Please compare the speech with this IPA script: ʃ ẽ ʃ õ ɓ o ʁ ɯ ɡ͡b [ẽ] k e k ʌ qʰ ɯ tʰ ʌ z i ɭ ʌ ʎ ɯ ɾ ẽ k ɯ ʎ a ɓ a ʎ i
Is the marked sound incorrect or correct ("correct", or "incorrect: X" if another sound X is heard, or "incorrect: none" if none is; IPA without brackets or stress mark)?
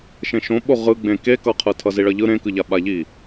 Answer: correct